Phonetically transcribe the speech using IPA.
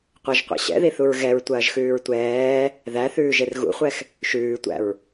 qʷ ɐ ʒ qʷ ḭ ɕ ɛ̰ ð i θ u ɹ ɣ ɛ ɹ tʷ ɐː ʒ x ʉː ɹ tʷ ɛː | ð æ θ ʉː ʒ e r ɣ ṵ χʷ ɛ x | ʃ ʉː tʷ æ̰ ɹ

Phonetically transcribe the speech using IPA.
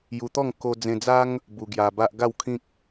j u˧ t̪ ɔ˥˧ ŋ k o˧ d͡z ẽ˧ d͡z a˦ ŋ | b u˧ ɡ j a˧ b a˦ ʔ ɡ a˥˧ w kʰ ĩ˦ k̚

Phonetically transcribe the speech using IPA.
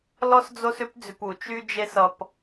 l ɔ˦ s d͡z o˦ s ʏ˦ p d͡z ʏ˧ p u˨ t͡ʃ y˦ d͡ʒ e˦ s ʌ˧ p

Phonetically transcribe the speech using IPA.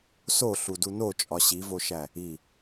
s o ɬ u d u n o t͡ʃʼ ɒ ɕ i v o ʃ æ | i

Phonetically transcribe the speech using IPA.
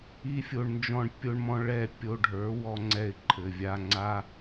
i˦ fʲ o˧ ɳ n d͡ʒ ɔ̃˦˨ ɳ pʲ o˧ ɳ m ɔ̃˧ ɭ ɛ˦˨ pʲ o˧ ɖʱ ə˞˨˦ w ɔ˧ ŋ͡ǀ ɛ˧ ɪ̯ ǃʰ ɘ˨ vʲ a˧ ŋ͡ǀ a˦

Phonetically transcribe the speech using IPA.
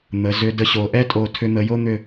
n̪ ə˩˧ z ʏ˧ d ə˧ ɕ o˩˧ ʔ ɛ˥ tʼ o˧˩ tʰ ʏ˧ n̪ ə˩˧ j o˥ n̪ ʏ˧˩

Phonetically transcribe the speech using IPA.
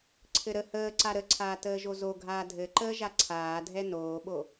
ǀʰ ɘ ɾ ə h əː ǀ a ɾ ə ǀʰ aː t əː ʒ o z o ɡʱ aː dʱ ɘ ǃ əː ʒ a ǀʰ aː dʱ ɛ n oː ɓ o

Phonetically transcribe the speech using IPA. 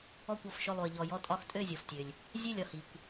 ɔ˦˨ kʷ ɔ˩ f ʃ ʊ˦˨ lˠ u˩ ə̯ ʎ ɔ˩ j ɔ˦˨ tʼ ɒ˦˨ x tʼ ø˦˨ zʲ ɔ˩ f tʲ ø˩ lʲ | zʲ ø˦˨ lʲ ɒ˩ h i˩ kʷ

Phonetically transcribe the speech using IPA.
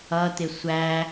ʌ t ɪ sʷ æ

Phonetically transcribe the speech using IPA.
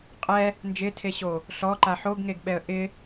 qʼ ɛ | n d͡ʒ ɪ tʰ e ɕ o | ɬ ɔ ǃ a ħ o ɡ ŋ e ɡ ɓ ɛ ə̯ ʔ ɪ

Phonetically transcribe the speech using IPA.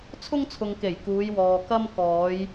t͡sʰ ʊ˥ ŋ t͡sʰ ʊ˨ ŋ k e˨˩ j k uː˨˧ j w ɔː˨ k ɐ˥ m k ɔː˨˧ j

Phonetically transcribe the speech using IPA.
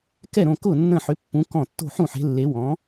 k ɛ˥˩ ɾ õ˥˩ k ʊ˥˩ nː ə̃˥˩ ħ ʏ˨˥ pː ũ˨˥ k ɔ̃˥˩ tː o̤˥˩ ħ ũ˥˩ ħ e̤˨˥ lː e˨˥ w ɔ̃˨˥

